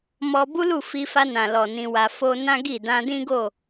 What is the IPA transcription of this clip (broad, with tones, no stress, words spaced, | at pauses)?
mɔ˧ bu˦lu˦˨ fi˧fa˧nã˨ lɔ˨ nĩ˧wa˧ fo˦ nã˦ɡi˦˨ dã˧dĩ˦ɡo˦˨